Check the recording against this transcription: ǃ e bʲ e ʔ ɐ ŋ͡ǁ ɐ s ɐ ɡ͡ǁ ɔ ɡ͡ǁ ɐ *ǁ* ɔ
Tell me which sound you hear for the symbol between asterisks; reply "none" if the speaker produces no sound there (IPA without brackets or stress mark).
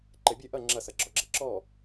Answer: ǁ